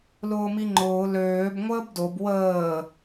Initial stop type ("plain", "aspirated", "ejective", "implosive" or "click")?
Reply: click